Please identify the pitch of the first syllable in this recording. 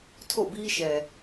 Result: falling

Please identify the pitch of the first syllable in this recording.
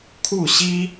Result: falling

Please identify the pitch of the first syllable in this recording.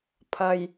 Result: low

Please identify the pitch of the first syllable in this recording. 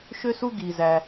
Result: high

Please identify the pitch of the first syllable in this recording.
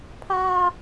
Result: high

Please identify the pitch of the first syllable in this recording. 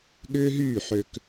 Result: high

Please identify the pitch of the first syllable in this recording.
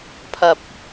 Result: low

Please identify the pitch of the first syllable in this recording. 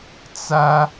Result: high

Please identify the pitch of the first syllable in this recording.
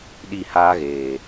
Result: falling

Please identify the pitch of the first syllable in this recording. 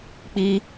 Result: high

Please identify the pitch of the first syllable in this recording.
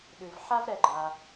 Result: low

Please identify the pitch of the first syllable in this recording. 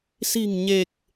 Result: low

